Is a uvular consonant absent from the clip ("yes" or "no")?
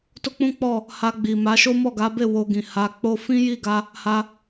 yes